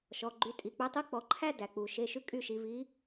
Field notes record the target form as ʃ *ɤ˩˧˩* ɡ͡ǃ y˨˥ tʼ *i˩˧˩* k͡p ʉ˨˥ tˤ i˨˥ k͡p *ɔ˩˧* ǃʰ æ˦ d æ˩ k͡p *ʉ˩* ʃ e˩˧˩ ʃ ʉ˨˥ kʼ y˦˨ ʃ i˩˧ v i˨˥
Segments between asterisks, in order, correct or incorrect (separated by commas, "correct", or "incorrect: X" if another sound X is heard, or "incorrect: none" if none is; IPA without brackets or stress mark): incorrect: ɔ˩˧˩, correct, correct, incorrect: u˩